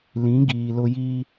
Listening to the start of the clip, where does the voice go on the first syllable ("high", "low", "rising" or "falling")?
rising